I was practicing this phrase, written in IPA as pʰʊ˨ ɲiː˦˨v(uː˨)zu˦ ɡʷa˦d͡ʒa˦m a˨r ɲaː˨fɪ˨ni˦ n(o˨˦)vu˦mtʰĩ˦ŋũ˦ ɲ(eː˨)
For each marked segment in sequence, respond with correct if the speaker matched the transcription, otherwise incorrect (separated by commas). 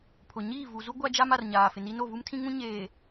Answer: incorrect, incorrect, correct